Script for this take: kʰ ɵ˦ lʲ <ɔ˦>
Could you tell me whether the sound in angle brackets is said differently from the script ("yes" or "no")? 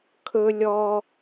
no